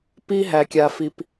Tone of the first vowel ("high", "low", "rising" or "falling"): high